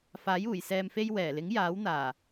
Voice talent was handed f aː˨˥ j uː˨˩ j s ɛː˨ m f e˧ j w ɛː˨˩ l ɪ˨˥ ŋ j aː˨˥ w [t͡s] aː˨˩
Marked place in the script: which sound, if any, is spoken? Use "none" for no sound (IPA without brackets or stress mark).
n̪